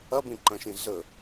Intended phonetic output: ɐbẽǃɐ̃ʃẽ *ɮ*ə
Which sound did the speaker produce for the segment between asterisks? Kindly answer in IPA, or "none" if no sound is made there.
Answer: ɮ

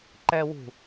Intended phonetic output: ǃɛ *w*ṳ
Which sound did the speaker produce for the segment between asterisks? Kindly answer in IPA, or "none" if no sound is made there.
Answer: w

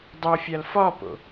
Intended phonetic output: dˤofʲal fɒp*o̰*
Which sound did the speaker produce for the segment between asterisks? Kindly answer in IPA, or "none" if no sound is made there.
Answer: o̰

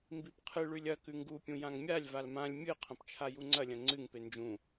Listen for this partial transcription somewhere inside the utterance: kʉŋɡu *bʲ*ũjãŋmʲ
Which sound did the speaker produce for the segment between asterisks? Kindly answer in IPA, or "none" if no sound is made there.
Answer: pʲ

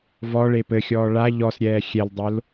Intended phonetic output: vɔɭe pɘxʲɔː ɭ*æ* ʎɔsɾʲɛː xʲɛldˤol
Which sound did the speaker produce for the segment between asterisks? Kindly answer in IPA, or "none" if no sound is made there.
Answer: a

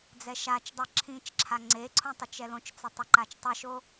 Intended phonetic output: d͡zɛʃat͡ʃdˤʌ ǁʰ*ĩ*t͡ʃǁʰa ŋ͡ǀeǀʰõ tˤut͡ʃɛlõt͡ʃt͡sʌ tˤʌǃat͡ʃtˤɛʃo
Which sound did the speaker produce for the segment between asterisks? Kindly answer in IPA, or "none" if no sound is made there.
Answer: ĩ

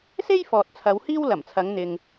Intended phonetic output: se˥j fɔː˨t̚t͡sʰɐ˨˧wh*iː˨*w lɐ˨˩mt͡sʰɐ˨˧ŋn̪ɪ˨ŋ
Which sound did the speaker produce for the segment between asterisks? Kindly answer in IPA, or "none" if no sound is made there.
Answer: iː˥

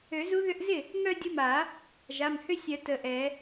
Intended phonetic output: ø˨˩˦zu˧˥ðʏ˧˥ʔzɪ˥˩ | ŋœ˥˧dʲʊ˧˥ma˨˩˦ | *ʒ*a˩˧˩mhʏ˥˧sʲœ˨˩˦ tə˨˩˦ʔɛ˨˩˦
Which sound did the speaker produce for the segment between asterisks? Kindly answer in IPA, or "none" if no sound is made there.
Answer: ʒ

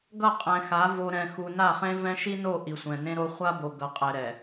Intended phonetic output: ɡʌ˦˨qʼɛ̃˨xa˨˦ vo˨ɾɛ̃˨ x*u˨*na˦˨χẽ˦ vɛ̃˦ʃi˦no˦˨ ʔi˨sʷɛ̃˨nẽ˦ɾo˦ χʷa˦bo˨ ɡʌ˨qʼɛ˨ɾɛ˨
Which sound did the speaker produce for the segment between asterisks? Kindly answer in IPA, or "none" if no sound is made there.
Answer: u˨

